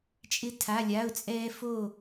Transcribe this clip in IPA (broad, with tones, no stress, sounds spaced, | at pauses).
t͡ʃʼ ɪ˥ tʰ a˧˥˧ lʲ a˧˥˧ ʊ̯ t͡sʼ ɛː˥ f o˦˨